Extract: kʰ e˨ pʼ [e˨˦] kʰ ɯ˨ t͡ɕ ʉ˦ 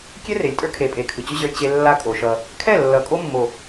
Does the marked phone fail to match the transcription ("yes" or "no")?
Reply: no